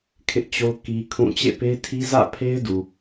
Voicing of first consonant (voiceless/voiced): voiceless